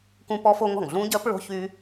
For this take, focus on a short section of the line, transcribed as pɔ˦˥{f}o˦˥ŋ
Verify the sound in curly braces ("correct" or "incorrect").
correct